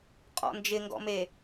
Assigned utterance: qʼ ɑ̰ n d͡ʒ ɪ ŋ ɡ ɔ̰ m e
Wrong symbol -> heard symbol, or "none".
ɑ̰ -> ɔ̰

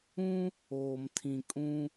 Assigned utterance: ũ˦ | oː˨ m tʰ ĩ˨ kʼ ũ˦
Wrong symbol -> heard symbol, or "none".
none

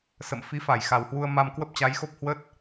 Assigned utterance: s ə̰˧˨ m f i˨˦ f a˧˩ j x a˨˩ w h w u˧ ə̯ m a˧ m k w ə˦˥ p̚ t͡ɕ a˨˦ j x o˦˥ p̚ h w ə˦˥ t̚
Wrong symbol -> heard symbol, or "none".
none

